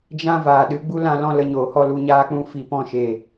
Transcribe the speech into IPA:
d͡ʒ ã˦ v aː˨ ɗ ɨ˨˦ ɡ͡b u˦ l ã˧ l ɔ̃˦ l ə˧ ɲ oː˨ h ɔ˦ l u˧ ɲ aː˦ k͡p ũ˦ f i˨ p ɔ̃˦˨ ʃ eː˨

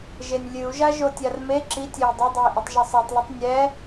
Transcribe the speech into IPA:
ʒ e nʲ lʲ ɨ u̯ ʒ a ʒ o tʲ a r m e ǁ i tʲ e j dˤ ɐ dˤ o i̯ ʔ u tˤ ʒ ɐ sˤ a tˤ l ɨ tˤ nʲ ɛ

